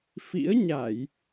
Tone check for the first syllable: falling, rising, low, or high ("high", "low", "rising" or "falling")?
rising